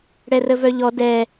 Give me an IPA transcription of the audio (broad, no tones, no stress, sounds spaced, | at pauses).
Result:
ɽ ɛ r ə v œ ʎ ɔ d ɛ